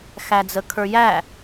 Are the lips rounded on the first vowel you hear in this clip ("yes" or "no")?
no